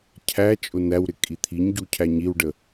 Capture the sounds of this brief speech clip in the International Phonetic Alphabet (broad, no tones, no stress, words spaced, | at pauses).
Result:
cʰæ t͡ʃʼʊnæwɾɪ kʼit̪ʰiɲɟu cʰæɲiwɖə